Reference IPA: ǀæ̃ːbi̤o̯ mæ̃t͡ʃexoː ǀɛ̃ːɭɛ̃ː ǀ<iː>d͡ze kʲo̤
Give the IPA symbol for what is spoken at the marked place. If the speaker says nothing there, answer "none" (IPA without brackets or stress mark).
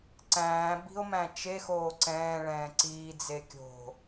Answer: iː